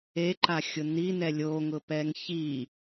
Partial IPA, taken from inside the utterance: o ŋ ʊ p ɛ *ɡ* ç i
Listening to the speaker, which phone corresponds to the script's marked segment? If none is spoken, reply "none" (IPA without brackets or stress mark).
ŋ